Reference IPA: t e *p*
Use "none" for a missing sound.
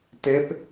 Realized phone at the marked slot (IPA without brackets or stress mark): p